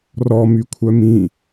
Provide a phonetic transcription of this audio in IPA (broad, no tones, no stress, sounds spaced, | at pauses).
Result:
r ɔ m y kʷʰ œ m ĩ